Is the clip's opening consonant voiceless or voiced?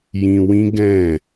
voiced